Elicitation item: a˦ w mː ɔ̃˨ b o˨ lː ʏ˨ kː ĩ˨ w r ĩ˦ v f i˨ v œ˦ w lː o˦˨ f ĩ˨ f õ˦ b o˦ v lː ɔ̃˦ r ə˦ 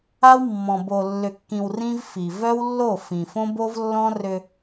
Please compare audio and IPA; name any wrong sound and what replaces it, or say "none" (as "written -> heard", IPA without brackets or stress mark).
ə˦ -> ʏ˦